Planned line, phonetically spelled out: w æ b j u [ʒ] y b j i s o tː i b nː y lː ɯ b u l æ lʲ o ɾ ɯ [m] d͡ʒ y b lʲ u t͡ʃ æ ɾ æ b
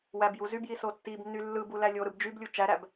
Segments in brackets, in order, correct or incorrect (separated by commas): incorrect, incorrect